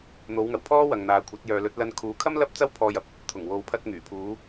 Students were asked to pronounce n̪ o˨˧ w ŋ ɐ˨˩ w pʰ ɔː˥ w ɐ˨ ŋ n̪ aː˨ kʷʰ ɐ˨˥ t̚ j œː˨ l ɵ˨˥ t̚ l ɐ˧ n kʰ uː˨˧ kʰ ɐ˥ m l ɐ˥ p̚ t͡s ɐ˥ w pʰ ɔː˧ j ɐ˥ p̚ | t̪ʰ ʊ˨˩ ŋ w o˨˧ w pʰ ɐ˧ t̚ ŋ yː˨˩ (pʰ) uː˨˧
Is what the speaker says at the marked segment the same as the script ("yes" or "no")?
yes